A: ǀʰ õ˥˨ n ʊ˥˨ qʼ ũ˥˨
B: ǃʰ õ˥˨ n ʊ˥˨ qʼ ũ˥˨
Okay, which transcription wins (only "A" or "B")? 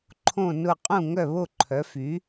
B